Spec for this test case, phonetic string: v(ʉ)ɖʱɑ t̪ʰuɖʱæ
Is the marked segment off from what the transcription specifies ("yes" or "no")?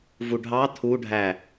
yes